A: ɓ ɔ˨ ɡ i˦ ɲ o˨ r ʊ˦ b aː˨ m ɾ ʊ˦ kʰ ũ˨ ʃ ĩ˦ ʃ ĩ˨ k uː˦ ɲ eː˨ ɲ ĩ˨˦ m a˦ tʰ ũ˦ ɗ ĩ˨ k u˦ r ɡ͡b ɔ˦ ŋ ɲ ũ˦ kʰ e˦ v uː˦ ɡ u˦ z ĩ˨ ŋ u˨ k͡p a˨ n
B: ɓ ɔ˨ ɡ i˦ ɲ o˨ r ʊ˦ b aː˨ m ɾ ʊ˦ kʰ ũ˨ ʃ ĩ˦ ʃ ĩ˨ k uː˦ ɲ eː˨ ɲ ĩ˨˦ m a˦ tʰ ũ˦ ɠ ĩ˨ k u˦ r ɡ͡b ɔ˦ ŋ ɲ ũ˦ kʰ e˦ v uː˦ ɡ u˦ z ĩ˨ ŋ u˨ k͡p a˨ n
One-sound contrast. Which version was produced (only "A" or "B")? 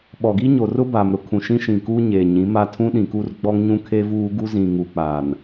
A